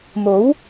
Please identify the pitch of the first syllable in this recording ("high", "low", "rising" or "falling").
rising